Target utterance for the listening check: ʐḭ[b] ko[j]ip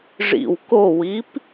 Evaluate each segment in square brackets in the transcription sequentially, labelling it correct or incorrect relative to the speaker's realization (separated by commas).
incorrect, incorrect